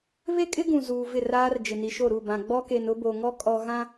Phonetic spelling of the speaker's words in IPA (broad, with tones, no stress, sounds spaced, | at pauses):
β e˦ kʼ ɪ˦ ɡ ũ˨ z uː˨ v ɪ˦˨ r aː˦ r d͡ʒ ɪ˨ n i˨ ʃ o˦˨ ɾ u˦˨ b ã˨ ɡ͡b ɔ˦ k e˨ n ʊ˦ b o˨ ŋ ɔ˦ kʼ ɔ˨ ɣ ã˦